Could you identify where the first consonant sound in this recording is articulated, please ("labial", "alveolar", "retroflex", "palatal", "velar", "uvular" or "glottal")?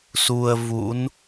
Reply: alveolar